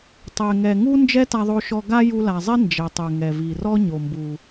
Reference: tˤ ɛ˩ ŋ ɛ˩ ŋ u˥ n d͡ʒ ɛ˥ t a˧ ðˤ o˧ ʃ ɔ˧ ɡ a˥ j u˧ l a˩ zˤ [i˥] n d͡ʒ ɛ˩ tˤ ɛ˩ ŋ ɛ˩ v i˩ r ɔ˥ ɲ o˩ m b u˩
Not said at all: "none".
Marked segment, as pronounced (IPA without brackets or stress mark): i˥